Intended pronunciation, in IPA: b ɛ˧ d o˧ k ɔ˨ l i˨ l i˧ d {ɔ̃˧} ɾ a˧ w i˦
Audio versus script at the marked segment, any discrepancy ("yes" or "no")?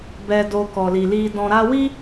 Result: no